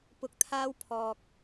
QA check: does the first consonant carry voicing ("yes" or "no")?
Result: no